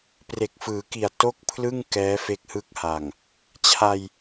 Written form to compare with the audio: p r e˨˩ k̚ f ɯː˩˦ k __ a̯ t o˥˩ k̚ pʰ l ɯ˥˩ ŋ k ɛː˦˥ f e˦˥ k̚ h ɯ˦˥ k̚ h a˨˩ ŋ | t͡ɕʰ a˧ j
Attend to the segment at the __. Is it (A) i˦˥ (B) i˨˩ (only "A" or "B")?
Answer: B